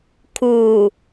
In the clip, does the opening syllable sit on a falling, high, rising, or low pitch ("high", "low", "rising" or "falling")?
low